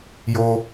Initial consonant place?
palatal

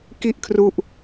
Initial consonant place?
velar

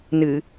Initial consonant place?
alveolar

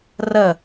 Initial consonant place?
alveolar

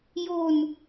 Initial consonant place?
palatal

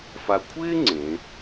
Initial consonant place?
labial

